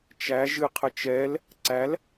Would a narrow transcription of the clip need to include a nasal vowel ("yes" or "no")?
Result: no